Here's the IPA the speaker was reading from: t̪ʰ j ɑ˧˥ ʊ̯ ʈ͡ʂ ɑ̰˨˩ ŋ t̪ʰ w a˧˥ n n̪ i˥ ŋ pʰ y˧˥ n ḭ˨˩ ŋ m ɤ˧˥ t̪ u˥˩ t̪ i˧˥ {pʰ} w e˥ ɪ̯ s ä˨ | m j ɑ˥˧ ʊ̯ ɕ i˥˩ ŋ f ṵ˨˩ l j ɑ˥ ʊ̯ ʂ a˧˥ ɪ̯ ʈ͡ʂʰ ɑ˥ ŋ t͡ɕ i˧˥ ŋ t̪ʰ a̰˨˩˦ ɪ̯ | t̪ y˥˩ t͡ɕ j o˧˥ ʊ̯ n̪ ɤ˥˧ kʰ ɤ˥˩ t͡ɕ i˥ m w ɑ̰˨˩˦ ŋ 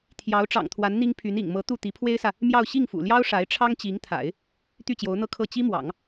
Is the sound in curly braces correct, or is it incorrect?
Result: correct